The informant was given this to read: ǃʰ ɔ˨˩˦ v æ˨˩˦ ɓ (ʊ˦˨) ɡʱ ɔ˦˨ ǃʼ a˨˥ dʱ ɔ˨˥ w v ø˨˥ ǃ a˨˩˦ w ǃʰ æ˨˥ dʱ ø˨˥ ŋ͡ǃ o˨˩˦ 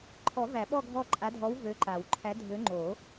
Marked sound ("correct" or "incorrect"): incorrect